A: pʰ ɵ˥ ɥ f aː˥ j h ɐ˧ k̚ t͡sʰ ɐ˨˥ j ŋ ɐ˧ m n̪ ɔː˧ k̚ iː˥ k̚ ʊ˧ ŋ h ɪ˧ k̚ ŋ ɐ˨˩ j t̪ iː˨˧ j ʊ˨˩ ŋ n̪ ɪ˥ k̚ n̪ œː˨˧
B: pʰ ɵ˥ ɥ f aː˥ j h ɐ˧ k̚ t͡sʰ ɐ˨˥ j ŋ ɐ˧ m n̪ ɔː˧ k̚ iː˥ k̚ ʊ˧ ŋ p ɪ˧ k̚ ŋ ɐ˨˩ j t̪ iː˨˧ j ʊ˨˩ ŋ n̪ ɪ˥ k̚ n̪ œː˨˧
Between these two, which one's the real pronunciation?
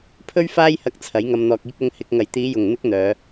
A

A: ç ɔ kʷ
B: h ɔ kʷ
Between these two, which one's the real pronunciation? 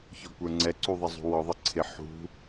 A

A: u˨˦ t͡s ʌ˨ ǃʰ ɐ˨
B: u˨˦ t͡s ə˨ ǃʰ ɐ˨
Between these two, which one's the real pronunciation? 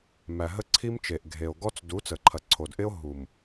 B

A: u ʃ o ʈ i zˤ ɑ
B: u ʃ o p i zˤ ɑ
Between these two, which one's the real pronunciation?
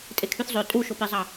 B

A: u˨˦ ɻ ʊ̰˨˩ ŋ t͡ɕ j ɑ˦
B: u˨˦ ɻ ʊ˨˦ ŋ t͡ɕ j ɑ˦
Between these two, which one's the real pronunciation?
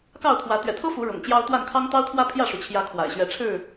A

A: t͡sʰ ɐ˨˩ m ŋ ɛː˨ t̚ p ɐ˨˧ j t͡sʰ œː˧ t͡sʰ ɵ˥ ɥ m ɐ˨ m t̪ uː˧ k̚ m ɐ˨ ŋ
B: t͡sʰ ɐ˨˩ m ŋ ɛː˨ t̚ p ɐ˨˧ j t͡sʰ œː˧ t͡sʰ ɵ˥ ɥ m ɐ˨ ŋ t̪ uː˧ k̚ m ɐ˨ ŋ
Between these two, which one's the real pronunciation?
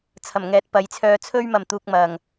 A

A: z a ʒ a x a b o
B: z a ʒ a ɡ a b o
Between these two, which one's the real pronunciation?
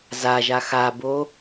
A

